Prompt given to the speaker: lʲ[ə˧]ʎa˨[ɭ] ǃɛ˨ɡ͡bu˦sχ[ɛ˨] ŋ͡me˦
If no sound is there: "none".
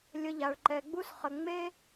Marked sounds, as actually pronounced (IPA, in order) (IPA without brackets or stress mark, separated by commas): ə˧, ɭ, ə˨